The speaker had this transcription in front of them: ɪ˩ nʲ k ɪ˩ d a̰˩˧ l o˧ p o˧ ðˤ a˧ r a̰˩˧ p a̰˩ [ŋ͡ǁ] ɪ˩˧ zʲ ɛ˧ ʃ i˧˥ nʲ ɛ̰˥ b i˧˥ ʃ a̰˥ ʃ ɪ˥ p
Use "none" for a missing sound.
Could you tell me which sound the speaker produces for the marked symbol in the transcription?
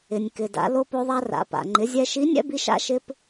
ŋ͡ǃ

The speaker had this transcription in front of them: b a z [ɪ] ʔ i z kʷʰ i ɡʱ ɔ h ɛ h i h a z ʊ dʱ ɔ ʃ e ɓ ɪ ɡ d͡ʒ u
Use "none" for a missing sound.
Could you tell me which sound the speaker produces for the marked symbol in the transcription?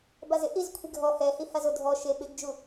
ɪ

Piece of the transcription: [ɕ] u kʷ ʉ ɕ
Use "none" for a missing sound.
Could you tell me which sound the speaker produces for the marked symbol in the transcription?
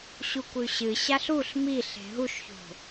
ɕ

